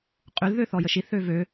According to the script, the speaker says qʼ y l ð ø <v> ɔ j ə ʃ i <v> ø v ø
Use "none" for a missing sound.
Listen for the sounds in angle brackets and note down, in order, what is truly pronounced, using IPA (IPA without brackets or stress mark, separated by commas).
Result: θ, θ